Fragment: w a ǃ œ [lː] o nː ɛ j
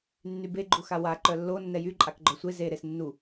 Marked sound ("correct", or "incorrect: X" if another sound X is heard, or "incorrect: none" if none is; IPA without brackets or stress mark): correct